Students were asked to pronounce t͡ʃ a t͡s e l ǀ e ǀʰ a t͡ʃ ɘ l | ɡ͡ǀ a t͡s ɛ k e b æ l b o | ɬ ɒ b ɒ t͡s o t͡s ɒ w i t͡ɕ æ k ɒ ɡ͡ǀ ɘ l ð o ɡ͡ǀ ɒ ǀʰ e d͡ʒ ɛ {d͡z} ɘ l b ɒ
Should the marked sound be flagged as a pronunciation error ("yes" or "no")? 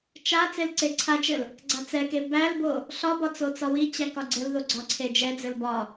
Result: no